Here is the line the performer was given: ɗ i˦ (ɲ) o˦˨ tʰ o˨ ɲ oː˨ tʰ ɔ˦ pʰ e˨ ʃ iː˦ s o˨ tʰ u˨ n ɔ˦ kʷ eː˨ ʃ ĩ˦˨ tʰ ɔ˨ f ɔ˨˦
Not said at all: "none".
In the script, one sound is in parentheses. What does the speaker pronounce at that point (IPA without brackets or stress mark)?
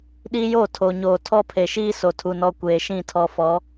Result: j